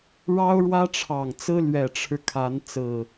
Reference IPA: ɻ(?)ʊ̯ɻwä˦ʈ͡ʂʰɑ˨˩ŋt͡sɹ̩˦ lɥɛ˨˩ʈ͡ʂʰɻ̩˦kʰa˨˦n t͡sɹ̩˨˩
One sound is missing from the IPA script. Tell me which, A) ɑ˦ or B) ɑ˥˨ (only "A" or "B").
A